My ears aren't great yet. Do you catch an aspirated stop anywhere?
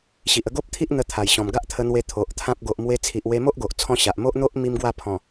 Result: yes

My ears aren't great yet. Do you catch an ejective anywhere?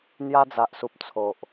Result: no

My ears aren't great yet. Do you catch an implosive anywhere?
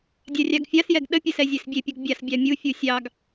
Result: yes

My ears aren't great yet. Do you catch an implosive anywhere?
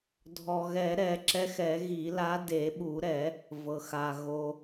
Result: yes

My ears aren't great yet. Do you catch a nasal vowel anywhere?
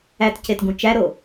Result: yes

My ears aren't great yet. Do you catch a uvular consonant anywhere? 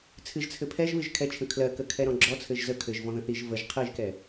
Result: yes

